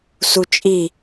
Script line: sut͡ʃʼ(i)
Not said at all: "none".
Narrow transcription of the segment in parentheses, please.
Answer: i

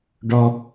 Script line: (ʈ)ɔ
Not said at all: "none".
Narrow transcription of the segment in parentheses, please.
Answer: ɖ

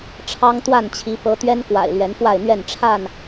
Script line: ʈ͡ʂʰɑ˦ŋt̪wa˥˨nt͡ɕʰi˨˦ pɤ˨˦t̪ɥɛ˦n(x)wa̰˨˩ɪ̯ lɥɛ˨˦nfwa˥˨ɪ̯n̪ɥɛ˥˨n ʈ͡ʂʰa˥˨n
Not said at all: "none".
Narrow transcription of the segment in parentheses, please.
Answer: k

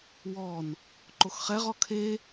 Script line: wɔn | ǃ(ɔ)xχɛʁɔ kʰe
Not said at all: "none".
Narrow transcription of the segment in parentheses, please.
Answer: o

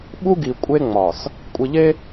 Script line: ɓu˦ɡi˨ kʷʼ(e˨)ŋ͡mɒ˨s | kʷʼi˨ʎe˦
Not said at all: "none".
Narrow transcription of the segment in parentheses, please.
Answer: e˦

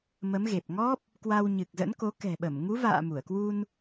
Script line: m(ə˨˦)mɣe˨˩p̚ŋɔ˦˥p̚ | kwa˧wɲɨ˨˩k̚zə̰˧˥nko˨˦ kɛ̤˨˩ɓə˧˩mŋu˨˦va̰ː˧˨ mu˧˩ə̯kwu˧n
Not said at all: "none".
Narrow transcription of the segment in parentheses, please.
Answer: ə˨˦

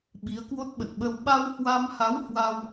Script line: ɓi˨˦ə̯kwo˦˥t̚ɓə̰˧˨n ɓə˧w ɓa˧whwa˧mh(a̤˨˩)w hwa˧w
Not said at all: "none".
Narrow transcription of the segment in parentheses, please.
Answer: a˨˦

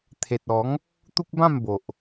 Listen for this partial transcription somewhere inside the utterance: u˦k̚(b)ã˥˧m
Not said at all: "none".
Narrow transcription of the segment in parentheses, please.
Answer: b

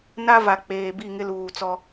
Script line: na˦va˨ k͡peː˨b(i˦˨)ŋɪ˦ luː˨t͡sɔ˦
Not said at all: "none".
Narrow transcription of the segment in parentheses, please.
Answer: i˦˨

